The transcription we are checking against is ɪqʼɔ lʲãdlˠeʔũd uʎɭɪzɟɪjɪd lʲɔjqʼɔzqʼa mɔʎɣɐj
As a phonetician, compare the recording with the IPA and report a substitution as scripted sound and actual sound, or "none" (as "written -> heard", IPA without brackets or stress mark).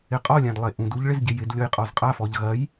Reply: m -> f